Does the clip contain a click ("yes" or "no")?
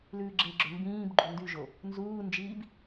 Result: yes